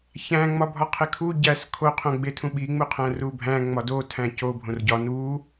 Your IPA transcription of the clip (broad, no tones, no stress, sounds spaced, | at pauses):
ç æ̃ ŋ͡m ɒ bʱ ɒ qʰ e kʰ u ɟ æ s kʰ o qʰ õ ɡ͡b e tʰ ũ ɓ i ŋ͡m u qʰ æ̃ r u bʱ æ̃ ŋ͡m ɒ d o tʰ æ̃ c o bʱ õ r ɟ ɒ n u